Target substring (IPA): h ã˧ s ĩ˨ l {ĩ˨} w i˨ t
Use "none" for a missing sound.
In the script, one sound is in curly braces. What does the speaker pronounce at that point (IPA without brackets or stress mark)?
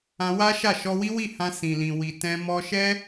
ĩ˨